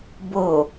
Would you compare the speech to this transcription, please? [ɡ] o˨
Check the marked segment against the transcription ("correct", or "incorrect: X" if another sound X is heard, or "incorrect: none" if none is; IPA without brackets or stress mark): incorrect: b